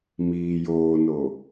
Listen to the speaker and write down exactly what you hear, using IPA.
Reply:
miːjoːno

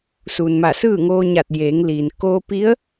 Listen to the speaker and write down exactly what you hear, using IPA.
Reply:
suː˩nma˧˩ sɯː˥˨ŋoː˧ɲa˧˩t̚ jeː˩˧ŋliː˩n koː˧pi˧˥ə̯

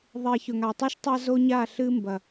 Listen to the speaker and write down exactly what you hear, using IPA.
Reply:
ðˤe˨ çɵ˨ŋa˨tˤʉ˦ʃ tˤa˦zo˦ɲa˦˨ ɬɨ˦mbɐ˨

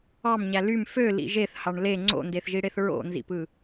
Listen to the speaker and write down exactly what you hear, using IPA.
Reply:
ɑmɲæ lym følḭ ʒeθhɑɳ le ŋ͡ǀo̰ndeθʒiɽeθ ɹo̰nzḭpɯ

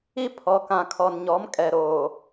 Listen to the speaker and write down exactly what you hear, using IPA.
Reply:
i˦ pʰɔ˨ kã˨kʰɔ˨nɲɔ˨˦m kʼɛ˨ɾoː˨

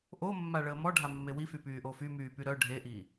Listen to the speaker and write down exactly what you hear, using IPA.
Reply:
ʔomːa ɭəːmɔɖʱa mːewify pyːʔofy myːpyɾœ ɖʱeʔi

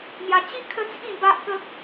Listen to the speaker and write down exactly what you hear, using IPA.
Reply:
n̪ja˧t͡ɕi˦ kʰə˦t͡sʰĩ˥˧ba˦ʔkə˦k̚

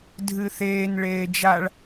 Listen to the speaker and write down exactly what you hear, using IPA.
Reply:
dʱɨθeːn ɭeːd͡ʒaɭ

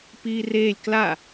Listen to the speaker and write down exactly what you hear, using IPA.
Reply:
piːreːlʲ kla

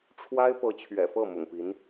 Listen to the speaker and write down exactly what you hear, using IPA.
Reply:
ʈ͡ʂʰwa˥ɪ̯ pɤ˧˥t͡ɕʰɥɛ̰˨˩fɤ˥˩ mʊ̰˨˩ŋpi˧˥n

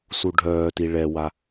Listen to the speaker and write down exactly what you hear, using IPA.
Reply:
suɖʱœːti ɭɛwa

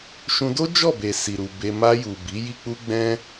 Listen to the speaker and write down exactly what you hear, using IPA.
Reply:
ʃũ˧do˦ d͡ʒɔ˦˨be˨ si˨ɾu˨ be˧ ma˧ju˨ bi˨˦ji˦k͡pu˦ ɡ͡bɛ̃˦

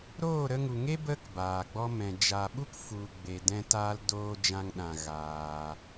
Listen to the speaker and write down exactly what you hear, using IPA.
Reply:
ɾoː˦˨ɾə˧ŋu˨ŋe˦ bə˦k baː˨ɡ͡bɔ˧ mɛ̃˨ d͡ʒa˨ ɓu˦k fu˨ ɡ͡be˧dɛ̃˦ taː˦ldoː˦d͡ʒã˦ŋ ɗã˧ ɣaː˧

